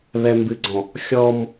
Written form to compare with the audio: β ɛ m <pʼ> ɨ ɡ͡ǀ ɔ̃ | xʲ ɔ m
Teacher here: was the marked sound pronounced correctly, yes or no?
no